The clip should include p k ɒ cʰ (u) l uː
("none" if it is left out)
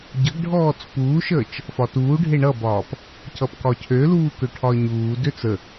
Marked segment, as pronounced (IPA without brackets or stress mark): ø